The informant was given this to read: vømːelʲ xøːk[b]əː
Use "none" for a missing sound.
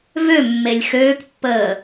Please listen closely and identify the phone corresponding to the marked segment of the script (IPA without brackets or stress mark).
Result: pː